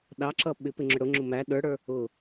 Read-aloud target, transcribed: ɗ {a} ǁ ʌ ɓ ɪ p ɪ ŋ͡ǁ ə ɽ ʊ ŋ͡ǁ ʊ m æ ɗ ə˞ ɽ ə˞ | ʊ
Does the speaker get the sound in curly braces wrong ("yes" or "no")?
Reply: yes